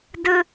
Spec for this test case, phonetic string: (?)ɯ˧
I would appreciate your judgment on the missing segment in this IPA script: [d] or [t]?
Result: d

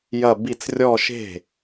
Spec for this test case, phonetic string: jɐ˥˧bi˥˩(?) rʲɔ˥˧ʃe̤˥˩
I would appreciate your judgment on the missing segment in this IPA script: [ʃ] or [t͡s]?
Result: t͡s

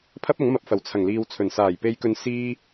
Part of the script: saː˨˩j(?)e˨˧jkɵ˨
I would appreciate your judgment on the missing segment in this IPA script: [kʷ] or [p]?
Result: p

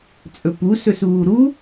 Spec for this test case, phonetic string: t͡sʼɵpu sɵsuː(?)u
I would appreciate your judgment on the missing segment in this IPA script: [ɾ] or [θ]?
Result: ɾ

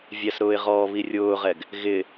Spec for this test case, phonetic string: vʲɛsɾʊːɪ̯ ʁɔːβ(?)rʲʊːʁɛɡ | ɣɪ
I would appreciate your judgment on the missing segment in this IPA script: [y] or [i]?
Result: i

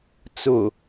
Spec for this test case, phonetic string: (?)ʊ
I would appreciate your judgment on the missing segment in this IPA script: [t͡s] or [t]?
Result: t͡s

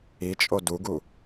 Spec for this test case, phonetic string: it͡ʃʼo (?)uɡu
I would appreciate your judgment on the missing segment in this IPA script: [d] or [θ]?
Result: d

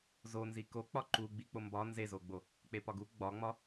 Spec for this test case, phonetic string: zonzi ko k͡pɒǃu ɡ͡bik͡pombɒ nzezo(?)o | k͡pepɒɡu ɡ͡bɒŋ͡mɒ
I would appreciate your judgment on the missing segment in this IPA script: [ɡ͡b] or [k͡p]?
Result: ɡ͡b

